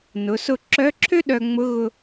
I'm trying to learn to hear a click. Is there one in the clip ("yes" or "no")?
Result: yes